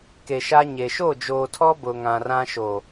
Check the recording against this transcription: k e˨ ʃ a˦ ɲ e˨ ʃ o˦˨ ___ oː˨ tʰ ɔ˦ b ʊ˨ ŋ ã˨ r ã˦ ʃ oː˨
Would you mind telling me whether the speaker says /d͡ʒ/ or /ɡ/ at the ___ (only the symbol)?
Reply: d͡ʒ